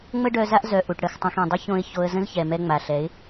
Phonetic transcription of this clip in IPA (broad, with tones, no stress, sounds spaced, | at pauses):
ŋ͡m ə˦ ɖ œ˧ z a˦ ʔ z œ˨ ʔ u˨ ʈ ɽ ə˨˦ x tˤ õ˧ x ĩ˨ dˤ ə˦ ç õ˧ ɪ̯ ç o˧ ə̯ z ə̃˦ z ç ɛ˨ m ɛ˧ ŋ͡m a˨ ɬ ɛ˨˦ ɪ̯